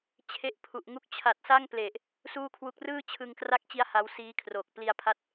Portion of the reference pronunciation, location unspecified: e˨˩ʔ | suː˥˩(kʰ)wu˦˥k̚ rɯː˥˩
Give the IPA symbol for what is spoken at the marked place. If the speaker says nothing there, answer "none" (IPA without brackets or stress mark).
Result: kʰ